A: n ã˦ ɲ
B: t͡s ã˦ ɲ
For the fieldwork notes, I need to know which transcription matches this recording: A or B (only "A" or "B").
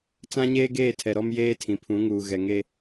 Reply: B